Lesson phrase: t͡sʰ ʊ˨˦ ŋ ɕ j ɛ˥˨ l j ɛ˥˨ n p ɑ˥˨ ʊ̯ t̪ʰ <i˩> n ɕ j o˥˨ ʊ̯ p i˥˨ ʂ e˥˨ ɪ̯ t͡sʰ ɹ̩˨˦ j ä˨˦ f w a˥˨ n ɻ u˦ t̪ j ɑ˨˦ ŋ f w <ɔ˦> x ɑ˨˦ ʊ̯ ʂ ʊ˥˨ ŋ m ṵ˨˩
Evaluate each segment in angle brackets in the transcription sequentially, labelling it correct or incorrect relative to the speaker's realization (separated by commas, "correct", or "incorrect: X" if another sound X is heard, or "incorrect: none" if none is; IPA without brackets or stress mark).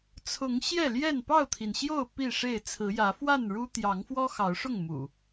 correct, correct